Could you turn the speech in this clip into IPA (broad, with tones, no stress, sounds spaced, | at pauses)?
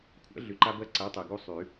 kʷʰ æ̰˩˥ ɮ y˩ ǃ a˧ b ɜ˧ ǀ æ˩˥ tˤ æ˩ ɡ u˧ sˤ y˨˩˦